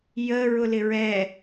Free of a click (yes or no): yes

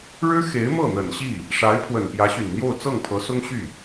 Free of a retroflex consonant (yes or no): no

